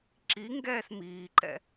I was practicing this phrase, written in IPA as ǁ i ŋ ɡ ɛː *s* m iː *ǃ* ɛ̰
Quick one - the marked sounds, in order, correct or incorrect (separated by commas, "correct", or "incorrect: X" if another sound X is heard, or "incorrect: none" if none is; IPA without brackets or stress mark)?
correct, correct